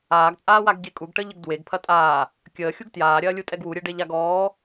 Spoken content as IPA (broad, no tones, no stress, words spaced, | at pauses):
aːɡt͡sʼaːwaɡɟe kʼuɡʈəʎəɡ dweɡpʰɐ tʼaː | kʲəːxʲuɡ tjaːɾʲɐːlʲutʼɛɡ wuɾʲeɖeʎaɡ ɔː